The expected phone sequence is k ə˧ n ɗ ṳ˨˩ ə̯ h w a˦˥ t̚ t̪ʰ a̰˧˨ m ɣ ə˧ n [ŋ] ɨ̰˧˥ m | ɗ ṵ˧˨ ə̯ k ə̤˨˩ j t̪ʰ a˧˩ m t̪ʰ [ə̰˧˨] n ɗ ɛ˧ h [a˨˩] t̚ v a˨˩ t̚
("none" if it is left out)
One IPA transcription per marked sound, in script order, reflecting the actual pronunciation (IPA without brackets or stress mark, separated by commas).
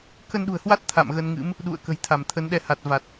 ŋ, ə˨˦, a˨˩